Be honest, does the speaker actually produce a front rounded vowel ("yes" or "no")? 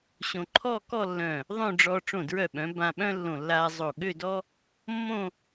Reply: yes